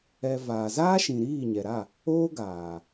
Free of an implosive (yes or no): yes